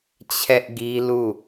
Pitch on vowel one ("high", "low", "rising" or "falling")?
high